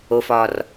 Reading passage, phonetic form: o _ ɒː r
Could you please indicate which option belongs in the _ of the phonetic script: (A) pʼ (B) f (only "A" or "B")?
B